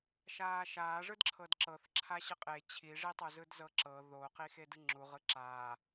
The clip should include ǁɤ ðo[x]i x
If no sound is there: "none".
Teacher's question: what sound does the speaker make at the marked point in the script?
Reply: q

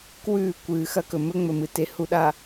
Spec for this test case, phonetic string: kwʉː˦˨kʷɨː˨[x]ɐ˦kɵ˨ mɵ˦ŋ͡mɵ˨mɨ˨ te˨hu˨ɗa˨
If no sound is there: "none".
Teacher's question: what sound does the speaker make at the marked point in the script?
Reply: x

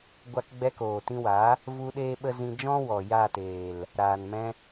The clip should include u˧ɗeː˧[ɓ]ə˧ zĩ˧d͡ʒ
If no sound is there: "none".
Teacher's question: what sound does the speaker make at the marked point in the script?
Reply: ɓ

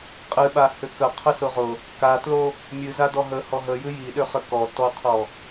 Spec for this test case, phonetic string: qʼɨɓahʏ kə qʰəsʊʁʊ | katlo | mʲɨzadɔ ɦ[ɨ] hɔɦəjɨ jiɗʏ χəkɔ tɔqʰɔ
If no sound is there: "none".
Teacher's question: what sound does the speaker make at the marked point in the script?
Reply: ə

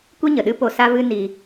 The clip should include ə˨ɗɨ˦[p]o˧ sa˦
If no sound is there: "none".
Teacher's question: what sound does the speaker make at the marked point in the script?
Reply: p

